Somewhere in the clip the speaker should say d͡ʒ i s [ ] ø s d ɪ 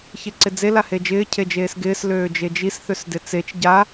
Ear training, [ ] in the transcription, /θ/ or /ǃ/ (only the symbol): θ